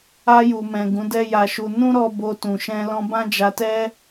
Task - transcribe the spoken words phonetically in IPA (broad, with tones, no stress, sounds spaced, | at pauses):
a˧ j u˨ m ɛ̃˨ ɡ ũ˨˦ d ɛ˦ j a˧ ʃ u˧ n ũ˦ ɾ ɔ˧ b o˧ t ũ˨ ʃ ɛ̃˧ l ɔ̃˧ b ã˦ d͡ʒ a˧ t ɛ˦